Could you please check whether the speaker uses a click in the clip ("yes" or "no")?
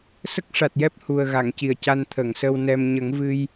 no